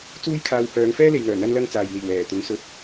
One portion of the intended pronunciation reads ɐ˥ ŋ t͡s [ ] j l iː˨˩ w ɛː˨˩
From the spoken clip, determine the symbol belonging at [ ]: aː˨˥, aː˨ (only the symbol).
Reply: aː˨